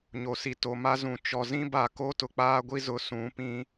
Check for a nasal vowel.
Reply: present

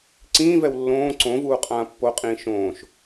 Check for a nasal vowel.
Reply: present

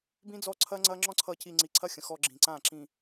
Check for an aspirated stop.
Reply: present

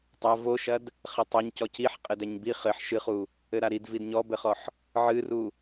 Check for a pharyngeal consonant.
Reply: present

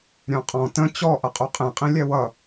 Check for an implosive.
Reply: absent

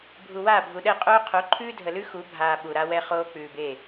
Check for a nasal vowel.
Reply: absent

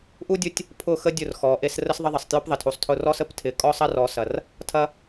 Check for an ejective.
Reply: present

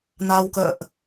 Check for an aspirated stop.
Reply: absent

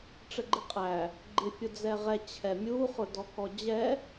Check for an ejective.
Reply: present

